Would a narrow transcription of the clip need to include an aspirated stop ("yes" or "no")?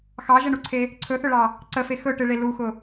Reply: yes